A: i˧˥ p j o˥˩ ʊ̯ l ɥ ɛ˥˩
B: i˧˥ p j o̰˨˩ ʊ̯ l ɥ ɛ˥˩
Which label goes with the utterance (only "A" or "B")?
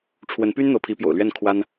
B